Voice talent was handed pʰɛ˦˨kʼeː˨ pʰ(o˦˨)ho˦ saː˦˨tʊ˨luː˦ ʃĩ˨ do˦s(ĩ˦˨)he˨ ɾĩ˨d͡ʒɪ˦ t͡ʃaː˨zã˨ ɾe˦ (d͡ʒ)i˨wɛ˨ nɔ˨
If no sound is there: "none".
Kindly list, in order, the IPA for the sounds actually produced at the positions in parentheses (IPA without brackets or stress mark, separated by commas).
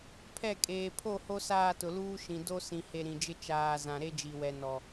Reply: o˦˨, ĩ˨, d͡ʒ